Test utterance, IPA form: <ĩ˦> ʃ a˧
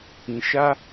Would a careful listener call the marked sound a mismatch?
yes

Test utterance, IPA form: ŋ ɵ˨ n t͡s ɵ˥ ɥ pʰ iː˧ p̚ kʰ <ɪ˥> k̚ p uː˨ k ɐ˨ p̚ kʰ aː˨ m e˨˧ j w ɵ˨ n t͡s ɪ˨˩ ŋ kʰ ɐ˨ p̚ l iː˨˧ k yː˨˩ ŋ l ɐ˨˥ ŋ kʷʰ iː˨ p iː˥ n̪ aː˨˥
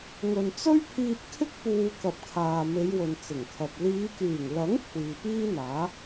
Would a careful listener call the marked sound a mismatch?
no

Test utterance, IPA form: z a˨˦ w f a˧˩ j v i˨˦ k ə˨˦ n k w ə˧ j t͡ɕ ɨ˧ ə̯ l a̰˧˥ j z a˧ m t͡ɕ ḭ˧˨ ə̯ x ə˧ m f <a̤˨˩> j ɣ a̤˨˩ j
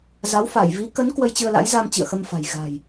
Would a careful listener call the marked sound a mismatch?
no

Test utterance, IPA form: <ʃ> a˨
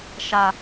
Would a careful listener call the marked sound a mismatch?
no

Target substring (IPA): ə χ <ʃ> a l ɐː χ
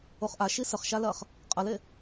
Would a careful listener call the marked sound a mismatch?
no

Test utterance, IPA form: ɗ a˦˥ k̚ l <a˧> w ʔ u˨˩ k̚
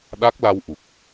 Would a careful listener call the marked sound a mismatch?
no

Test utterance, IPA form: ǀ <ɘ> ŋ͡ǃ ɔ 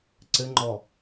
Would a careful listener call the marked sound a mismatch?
no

